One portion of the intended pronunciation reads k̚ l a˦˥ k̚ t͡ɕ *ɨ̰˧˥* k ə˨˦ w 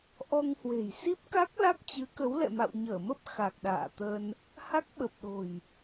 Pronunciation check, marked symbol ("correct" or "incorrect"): incorrect